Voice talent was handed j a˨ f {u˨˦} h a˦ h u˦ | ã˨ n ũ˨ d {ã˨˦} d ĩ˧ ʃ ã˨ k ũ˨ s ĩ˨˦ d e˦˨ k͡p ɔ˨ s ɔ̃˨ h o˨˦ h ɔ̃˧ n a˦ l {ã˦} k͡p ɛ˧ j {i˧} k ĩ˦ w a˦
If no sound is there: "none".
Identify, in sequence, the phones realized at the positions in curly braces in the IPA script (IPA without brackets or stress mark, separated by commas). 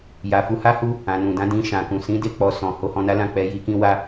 u˨˦, ã˨˦, ã˦˨, i˧